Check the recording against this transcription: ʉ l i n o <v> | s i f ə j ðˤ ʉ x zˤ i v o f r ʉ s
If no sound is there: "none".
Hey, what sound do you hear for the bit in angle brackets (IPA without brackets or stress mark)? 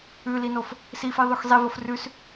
f